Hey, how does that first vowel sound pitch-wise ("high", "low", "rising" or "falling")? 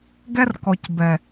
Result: high